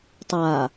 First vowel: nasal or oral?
oral